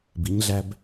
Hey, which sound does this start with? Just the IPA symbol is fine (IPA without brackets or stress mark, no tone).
b